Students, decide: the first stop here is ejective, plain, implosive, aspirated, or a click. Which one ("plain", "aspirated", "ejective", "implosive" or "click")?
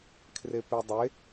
aspirated